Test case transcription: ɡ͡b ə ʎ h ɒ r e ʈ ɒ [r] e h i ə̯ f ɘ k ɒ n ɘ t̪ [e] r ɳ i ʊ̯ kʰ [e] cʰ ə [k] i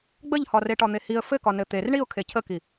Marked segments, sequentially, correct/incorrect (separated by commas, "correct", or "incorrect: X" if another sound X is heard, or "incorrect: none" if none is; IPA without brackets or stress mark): incorrect: n̪, correct, correct, correct